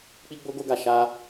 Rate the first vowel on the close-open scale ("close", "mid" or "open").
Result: close